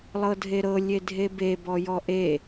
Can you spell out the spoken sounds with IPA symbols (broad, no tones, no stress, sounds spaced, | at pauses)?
lˠ ɤ dʱ e ɾ ɤ lʲ e dʱ e b e b ɔ j ɔ ʔ e